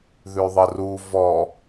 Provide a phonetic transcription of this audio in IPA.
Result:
ð ʉ ðˤ ə r u v ɔ

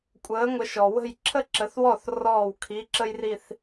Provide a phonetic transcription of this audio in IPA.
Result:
kʷʼ əː˨˥ ŋʷ ə˨˥ ʃ ɔ˩ w ə̤˥˩ j ǁʰ ə˥ ǁ ə˨˥ θ w ɔ˥˩ θ r ɔː˥˩ w kʰ i˧˥˧ ǁ ə˥ j r i˥˧ θ

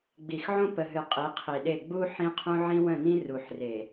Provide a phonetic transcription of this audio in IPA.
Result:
ɡ͡b i˨ x ʕ õ˦ p ə˨ ɦ ɨ˨ qʼ i˨˦ qʰ i˨ ɗ e˦˨ ɡ͡b u˦ ħ ĩ˦ qʰ ũ˦ ʕ ĩ˦ w ə̃˦˨ n ĩ˦ r u˨ ħ r e˨

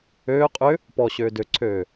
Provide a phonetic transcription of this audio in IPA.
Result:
øː qʼ ʏ | p ɔ ɕ øː d ø ǀʰ øː

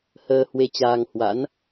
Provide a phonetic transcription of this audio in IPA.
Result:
h əː˧ h w e˧ t͡ɕ aː˧ ŋ h w a̰˧˥ n

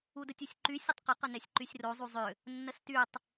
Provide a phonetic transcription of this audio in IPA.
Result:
u d ə tʲ u sʲ ǃ y sʲ ə tˤ q ə q ə n ɛ sʲ ǃ y sʲ r o zˤ u zˤ ʏ | nː ə s t y tˤ

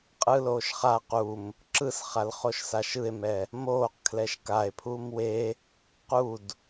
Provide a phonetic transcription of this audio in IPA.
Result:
qʼ ɯ l oː ʃ χ a q u m | ǁ ɯ s χ a l χ o ʃ s a ʃ ɯ e̯ m ɛ | m oː q kʰ l ɛ ʃ k a e̯ pʰ uː m w e | q u d

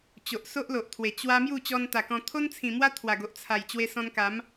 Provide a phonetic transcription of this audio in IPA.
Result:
t͡ɕ o˨ ʔ s o˦ ʔ l o˨ ʔ t̪ʰ w e˨˩ t͡ɕ w a˧ m j u˥˧ t͡ɕ ɔ˧ n t̪ a˨˩ k ɔ̃˧ t̪ʰ o˦ n t͡sʰ ĩ˨˩ m w a˦ t̪ʰ w a˨˩ ɡ o˨ ʔ t͡sʰ a˨˩ j t͡ɕ w e˧ s ɔ̃˧ n k a˨˦ m

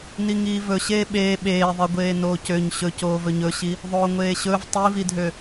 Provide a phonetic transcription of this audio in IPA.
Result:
n i ŋ iː v ɵ ɕ eː ɓ eː ɓ eː ðˤ i ɡʷ eː n oː c ø ɲ ɕ ɵ c oː v ɵ ɲ ɵ ɕ i | ðˤ oː ŋʷ eː ɕ ɵ v tˤ i v i dʱ ø

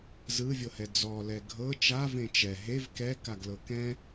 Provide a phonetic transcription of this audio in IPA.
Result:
z ɯ vʲ ɤ h ɛ d͡z ɔ l ɛ ɡʱ ɤ t͡ʃ a v ẽ t͡ʃ ɛ ɦ e v k ɛ k a ɡ l ɤ k ɛ̃

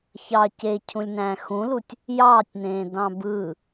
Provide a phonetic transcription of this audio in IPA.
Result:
ç ɑ c e cʰ ũ lʲ n æ̃ː x ũ l u tʲ | j ɑː tʲ n̪ ẽː d ɑ̃ b ɯ

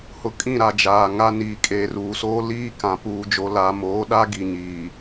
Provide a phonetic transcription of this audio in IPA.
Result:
h ʊ˨ kʼ ĩ˦˨ ɾ a˨ d͡ʒ aː˨ ŋ a˦ n iː˨ kʼ eː˨ r uː˨ s oː˦ l iː˦ k ã˨ p uː˨ d͡ʒ o˨ l aː˨ m oː˨˦ ɗ a˦ ɡ i˨ ɲ iː˨

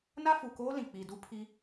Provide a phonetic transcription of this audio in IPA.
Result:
n a˦ f u˨ k oː˦ l ĩ˨ k͡p i˨ d u˦ pʰ i˦

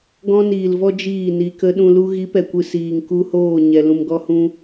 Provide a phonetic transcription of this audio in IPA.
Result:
ɡ ɔ̃˦ n iː˨ l v ɔ˦ d͡ʒ iː˦˨ n i˨ k ə˧ ɗ ũ˧ l u˦ ɣ i˨˦ p ɛ˨ kʷ ɨ˨ s iː˨ ŋ k u˧ h oː˦˨ ɲ ɛ˨ l ũ˨ m ɡ ɔ˧ h ũ˧

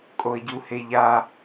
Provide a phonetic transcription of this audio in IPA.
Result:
kʼ o ə̯ ɟ u h e ʎ a

